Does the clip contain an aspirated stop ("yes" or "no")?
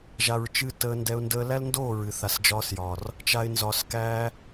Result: no